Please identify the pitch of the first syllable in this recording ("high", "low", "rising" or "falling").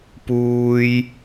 high